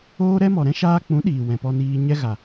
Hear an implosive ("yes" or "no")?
yes